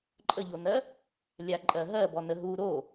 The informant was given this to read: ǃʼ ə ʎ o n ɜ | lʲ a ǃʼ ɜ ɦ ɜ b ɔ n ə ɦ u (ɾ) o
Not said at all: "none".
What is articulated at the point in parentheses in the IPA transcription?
ɾ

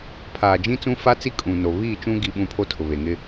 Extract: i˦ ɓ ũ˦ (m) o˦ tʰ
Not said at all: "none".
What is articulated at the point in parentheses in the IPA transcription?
pʰ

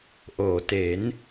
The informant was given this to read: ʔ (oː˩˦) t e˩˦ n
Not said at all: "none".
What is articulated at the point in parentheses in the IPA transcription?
oː˩˦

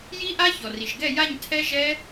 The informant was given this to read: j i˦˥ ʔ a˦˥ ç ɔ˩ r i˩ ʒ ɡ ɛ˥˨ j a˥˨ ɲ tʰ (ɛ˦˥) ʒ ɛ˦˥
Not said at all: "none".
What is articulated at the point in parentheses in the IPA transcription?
ɛ˦˥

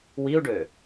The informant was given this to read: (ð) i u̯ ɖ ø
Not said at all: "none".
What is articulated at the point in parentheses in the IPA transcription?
w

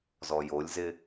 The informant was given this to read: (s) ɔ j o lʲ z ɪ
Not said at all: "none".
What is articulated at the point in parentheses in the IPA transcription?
z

